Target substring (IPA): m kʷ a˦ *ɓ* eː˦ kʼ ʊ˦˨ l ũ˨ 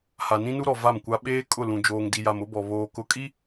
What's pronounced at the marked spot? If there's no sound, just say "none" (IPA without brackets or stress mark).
ɓ